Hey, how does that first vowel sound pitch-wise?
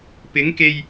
rising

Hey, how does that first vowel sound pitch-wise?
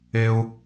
high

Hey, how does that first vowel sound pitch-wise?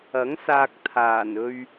rising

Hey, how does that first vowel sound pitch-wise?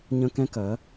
high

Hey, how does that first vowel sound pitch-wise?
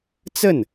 falling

